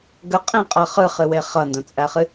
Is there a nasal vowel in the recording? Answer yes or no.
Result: yes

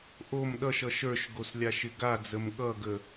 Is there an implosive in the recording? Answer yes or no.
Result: yes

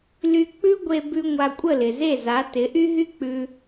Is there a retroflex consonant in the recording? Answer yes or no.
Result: no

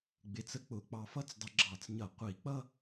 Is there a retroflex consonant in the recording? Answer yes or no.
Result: no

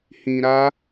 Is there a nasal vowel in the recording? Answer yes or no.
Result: yes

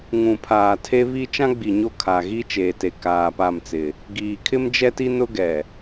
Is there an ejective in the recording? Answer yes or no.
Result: no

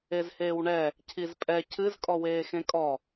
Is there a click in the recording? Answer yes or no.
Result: no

